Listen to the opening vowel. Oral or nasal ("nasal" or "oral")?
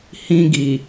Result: nasal